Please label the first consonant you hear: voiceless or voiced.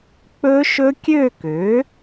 voiceless